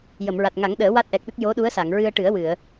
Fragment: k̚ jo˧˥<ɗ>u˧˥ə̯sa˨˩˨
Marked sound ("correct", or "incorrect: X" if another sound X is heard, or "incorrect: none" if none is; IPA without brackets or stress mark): correct